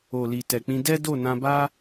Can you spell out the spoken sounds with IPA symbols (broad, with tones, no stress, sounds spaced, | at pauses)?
o˨ l i˨ t ɛ˨ k͡p ĩ˧ d ɛ˦ d o˦˨ n ã˧ b a˦